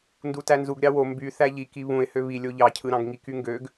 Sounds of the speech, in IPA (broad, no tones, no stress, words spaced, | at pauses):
ndutænzuɡ ɾʲɑwo mby θæʎiki βũɪ̯hø βi lʲoʎɑcʰɯɾɑ̃ɡ ŋikyŋɡøɡ